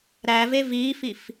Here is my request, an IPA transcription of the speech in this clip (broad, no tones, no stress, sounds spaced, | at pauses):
ɾ æ v e v i f i f